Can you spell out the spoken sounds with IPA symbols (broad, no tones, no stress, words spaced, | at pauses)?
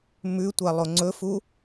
mʉtʷalˠo ŋ͡ǀɵfu